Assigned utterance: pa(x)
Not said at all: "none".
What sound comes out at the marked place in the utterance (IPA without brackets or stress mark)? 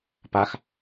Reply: x